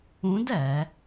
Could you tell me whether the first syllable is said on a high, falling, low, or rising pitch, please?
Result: rising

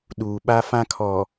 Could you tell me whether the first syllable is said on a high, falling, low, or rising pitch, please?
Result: low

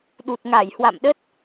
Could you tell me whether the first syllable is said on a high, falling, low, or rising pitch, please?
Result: low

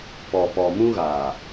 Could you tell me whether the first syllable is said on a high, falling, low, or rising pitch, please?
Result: low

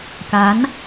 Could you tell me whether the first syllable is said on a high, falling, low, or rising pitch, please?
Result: rising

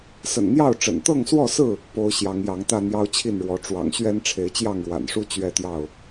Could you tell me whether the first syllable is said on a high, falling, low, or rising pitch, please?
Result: low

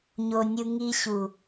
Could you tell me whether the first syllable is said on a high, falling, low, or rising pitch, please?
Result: low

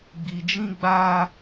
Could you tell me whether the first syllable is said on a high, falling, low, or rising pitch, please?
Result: low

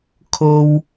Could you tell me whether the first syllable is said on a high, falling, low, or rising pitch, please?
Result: low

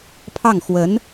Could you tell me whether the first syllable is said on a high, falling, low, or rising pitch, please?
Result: falling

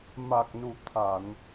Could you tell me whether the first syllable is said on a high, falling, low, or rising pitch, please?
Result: low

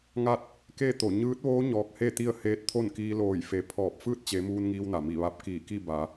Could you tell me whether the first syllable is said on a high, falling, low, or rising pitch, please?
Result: falling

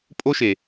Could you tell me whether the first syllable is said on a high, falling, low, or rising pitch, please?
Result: high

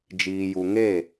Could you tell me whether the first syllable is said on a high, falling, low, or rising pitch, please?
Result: low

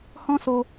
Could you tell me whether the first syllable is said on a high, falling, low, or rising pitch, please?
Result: high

